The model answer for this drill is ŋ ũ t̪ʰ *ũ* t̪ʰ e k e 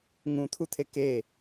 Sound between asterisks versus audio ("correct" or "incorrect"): incorrect